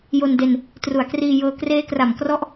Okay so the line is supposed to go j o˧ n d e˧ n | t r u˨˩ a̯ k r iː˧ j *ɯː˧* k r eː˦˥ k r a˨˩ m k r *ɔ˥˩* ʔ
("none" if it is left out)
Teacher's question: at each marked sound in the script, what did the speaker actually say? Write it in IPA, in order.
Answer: ɤː˧, ɔ˦˥

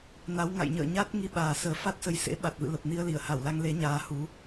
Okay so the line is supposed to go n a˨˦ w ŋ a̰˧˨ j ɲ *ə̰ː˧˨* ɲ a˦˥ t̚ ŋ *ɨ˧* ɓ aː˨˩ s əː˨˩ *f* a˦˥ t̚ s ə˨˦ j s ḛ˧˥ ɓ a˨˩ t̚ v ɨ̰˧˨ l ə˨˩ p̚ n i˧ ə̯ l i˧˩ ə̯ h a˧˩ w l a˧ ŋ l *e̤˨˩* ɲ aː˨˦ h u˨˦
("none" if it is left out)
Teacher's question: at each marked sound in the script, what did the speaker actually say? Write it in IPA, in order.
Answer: ə̰ː˧˨, i˧, f, e˨˦

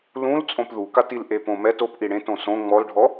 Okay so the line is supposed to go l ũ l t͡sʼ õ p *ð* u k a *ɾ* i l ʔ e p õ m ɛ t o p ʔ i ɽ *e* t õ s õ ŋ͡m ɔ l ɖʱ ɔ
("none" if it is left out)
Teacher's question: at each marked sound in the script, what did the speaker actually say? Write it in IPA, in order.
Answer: ð, t, ẽ

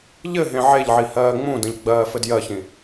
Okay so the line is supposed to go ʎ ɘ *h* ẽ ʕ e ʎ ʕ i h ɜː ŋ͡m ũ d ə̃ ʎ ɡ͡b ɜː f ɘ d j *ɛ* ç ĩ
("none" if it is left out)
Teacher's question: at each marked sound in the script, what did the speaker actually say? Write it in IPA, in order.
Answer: ɦ, ɜ

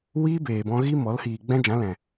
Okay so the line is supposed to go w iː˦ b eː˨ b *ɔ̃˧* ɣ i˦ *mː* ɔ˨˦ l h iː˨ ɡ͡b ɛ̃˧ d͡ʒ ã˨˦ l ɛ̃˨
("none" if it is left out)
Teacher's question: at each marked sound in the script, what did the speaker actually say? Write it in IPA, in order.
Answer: ɔ̃˧, m

